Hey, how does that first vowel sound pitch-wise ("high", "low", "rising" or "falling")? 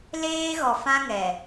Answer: high